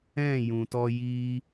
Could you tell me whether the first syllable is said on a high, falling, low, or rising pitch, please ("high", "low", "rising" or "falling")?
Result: falling